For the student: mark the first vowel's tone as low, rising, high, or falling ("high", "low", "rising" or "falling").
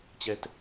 high